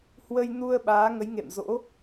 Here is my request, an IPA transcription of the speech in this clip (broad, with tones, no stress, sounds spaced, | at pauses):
h w ə˧ j n u˧ ə̯ ɓ aː˨˦ ŋ ə˨˦ j ŋ ḛ˧˨ m z o̰˧˥